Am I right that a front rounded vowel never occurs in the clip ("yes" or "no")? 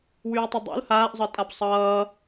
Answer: no